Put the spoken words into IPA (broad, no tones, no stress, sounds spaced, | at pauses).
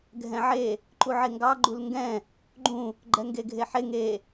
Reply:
ɡʱ ɛ̃ ʕ e | ǃ u ʕ e ŋ ɡ ɑ ɡ͡ǃ u l ŋ ɡ ɛ̃ | ɡ͡ǃ ũ | ɡ͡ǃ ɛ ŋ ɡ e ɡʱ e ħ e ŋ e